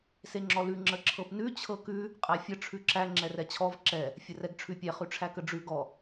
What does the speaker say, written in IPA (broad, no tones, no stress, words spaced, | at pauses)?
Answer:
seŋ͡ǁɔlʉ ŋ͡ǁəǁʰɤpnʉ t͡ɕʰɤkʉ | qʼæfʲə ʈ͡ʂʰʉǁæ ŋ͡ǁɛrɛt͡ɕʰɔv ǁɛ | fʲərɛɡʈ͡ʂʰʉpʲɛ χʉʈ͡ʂʰækəɖ͡ʐʉ ɡɔ